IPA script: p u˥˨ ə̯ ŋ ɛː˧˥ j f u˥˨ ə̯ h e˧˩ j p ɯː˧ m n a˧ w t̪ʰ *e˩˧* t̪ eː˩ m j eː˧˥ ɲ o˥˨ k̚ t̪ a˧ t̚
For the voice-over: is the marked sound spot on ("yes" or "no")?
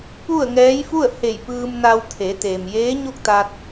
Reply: yes